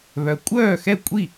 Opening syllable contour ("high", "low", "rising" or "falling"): low